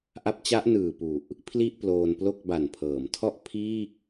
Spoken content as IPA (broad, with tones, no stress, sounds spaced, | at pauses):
ʔ a˦˥ p̚ t͡ɕ a˦˥ ʔ n ɯː˨˩ p u˨˩ ʔ | pʰ l i˥˩ ʔ p l oː˧ n p l o˥˩ k̚ b a˨˩ n pʰ ɤː˩˦ m tʰ ɔ˥˩ ʔ pʰ iː˥˩ k̚